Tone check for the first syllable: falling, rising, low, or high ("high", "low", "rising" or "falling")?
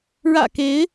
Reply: low